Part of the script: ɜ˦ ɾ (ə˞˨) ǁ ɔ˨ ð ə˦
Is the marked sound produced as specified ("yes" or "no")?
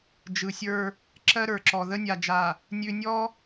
yes